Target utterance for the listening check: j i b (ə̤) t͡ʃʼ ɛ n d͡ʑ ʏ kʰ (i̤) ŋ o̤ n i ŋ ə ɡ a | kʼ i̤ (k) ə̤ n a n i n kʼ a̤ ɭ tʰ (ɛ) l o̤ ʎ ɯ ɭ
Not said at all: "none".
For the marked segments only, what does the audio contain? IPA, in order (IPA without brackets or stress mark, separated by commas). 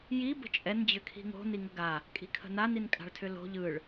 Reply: ə̤, i̤, kʰ, ʏ